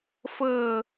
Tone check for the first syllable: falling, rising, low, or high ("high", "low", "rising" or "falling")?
falling